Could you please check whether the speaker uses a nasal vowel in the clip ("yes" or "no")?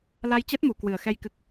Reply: no